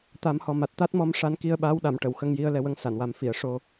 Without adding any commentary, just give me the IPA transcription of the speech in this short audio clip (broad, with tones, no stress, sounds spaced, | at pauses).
t̪ a˨˩˦ m h ɔ˨˩ m a˨˩ t̚ t̪ a˦˥ t̚ m ɔ˧˥ m ʂ a˧ n k i˧ ə̯ ɓ aː˧˥ w ɗ a˨˩˨ m ʈ ə˨˩˨ w x ə˧ ŋ j i˧ ə̯ l ɛ˧ w ə˧˥ ŋ s a˨˩˨ n w a˨˩˦ m f i˨˩˨ ə̯ ʂ o˧